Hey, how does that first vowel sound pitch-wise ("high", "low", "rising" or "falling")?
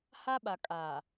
high